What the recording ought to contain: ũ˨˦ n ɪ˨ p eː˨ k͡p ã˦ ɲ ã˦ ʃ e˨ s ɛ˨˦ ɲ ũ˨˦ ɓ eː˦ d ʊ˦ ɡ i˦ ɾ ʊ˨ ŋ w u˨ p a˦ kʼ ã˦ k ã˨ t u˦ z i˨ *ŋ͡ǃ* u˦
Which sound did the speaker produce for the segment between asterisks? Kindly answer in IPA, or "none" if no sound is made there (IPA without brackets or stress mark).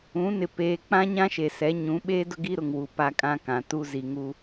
ŋ